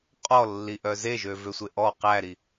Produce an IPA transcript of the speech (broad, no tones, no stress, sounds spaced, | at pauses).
qʼ ɔ lː i ʔ œ z e ʒ ø v ø sʷ e ʔ ɔ q æ ɾ i